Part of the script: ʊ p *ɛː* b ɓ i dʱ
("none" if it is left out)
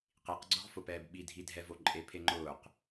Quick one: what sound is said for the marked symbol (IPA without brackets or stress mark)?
ɛː